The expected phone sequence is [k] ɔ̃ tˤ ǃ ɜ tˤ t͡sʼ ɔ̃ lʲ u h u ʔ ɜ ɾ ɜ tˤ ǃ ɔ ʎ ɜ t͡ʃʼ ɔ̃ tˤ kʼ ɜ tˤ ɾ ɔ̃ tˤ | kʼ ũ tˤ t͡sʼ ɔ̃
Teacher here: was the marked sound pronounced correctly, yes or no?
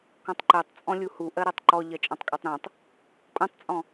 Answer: yes